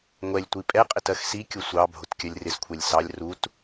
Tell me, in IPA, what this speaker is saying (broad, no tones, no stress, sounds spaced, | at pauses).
ŋʷ ɛ lʲ tʷ i pʼ ɛ qʼ ɪ t ɜ x s i kʲ ʊ sʷ ɑ bʱ ʊ t kʲ ɜ lʲ r ɪ s kʷʰ ɛ lʲ s ɑ lʲ r u t